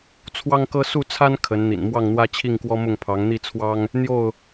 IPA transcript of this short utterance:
t͡sʰwɑ˦ŋkɤ˦ su˥˨ t͡sʰa˦n kʰə˨˦n n̪ḭ˨˩n mwɑ˥˨ŋn̪wä˦ t͡ɕʰi˥˨ŋkwɔ˦mʊ˥˨ŋ pʰɑ˨˦ŋn̪i˥˨t͡sʰwɑ˦ŋ | n̪jo˥˨ʊ̯

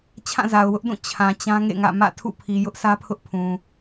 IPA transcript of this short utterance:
t͡ɕʰã˦˨za˨ʊ̯wʊ˦ʔdũ˦˨ t͡ɕʰã˨ t͡ɕã˦ŋḛ˦˨ŋä̰˦˨ mä̰˦˨ tʰṵ˦˨pʰi˨ jʊ˦ʔsä˦pʰʊ˦ʔ pʰũ˨

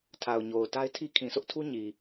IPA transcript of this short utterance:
tʰa˨ʊ̯ɲo˨ʊ̯ ta˦ɪ̯tʰi˦ kʰĩ˨sʰʊ˦ʔtʰu˦ ɲi˨

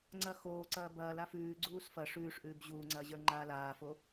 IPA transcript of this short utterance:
ŋ͡ǀɐ xoːǀɐː bɐːla fʉːɡ͡ǀuːs fɐ ʂʉːʂʔʉːb ʑuːŋ͡ǀɐːʑə˞ŋ͡ǃaː laːfo

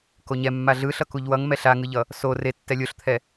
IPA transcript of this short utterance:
koɲɛ mːaɮɯ ɬʌkuʎwʌŋ mɛɬaŋɯʎʌ | so re tːɛlʲoɬt̪ʰɛ

